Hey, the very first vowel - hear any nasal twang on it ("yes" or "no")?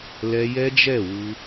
no